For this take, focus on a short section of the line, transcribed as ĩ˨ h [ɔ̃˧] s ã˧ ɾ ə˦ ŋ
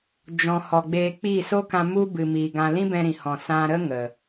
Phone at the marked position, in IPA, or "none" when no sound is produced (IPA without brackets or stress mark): ɔ̃˨